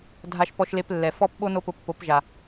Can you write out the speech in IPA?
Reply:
dʱ a˧ ʃ p ɔ˧ ʃ l e˧ p lː ɛ˨ f ɔ˦ p ɓ o˦ n o˦ p ʊ˧ pː o˨˦ p ʒ a˨

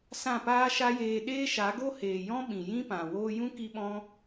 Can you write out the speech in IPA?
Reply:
s ã˦˨ p aː˦ ʃ a˦ j eː˧ ɗ eː˦ ʃ a˨˦ ɡ o˦ h eː˨ j ɔ̃˦ ɓ ĩ˨ j ĩ˦ p ã˨ w oː˧ j ũ˦ k i˦ ɓ ɔ̃˦

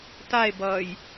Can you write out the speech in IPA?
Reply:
t a e̯ b ʌː j

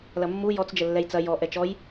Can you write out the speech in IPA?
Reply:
l ɐ mː u j ɔ t͡s d͡ʒ ə lː ɛ j t͡s ɐ j ɔ ʔ ɛ t͡ʃ ɔ j

